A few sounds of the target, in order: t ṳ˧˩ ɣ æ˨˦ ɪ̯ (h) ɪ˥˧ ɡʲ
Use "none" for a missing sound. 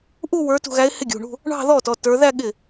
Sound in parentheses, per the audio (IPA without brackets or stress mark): h